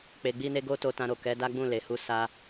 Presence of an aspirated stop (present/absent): absent